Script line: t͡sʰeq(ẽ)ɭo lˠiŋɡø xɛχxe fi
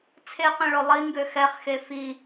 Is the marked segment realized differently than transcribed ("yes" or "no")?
no